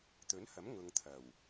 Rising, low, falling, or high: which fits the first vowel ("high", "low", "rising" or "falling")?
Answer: rising